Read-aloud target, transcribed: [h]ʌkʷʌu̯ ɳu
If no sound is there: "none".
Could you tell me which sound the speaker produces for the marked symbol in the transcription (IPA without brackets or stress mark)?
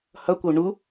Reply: h